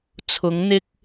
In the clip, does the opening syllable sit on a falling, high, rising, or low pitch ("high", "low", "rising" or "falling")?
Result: rising